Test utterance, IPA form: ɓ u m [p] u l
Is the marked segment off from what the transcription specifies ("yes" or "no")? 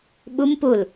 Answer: no